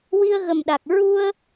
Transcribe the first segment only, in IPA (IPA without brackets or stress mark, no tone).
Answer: w